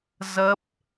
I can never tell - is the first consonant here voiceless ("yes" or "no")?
no